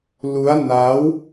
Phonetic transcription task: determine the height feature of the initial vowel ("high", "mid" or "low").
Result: high